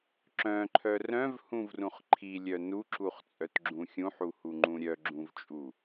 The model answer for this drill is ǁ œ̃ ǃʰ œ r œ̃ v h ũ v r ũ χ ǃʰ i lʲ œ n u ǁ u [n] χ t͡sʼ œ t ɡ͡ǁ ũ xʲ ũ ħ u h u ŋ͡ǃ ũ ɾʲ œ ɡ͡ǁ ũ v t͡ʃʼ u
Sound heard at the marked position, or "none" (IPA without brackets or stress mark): none